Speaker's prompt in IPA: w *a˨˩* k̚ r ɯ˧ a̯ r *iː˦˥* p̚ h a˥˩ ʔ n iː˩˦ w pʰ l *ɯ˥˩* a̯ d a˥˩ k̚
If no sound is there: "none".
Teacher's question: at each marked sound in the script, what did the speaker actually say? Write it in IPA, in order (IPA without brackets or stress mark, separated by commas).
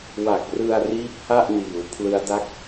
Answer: a˨˩, iː˦˥, ɯ˦˥